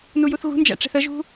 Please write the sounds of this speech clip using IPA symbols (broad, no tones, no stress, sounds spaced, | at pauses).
n u j u θ ɣ ṳ n d͡ʒ æ̰ ʈ͡ʂ ɛ̤ θ ə ʒ ṳ